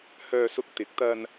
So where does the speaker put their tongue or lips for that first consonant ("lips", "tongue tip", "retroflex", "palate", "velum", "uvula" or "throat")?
throat